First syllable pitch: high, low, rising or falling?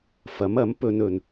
rising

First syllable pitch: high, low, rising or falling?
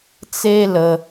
high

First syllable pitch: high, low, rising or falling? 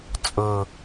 low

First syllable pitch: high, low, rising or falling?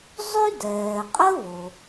high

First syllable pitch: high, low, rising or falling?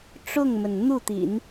falling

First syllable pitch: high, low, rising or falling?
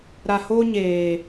low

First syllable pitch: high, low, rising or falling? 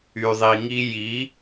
low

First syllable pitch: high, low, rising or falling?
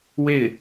falling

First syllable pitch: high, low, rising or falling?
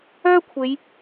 high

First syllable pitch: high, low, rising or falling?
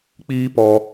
high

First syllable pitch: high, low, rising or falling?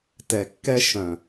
low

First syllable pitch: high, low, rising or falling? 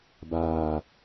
low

